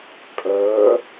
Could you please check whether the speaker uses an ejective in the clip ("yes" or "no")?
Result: yes